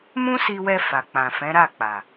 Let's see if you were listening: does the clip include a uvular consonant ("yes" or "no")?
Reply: no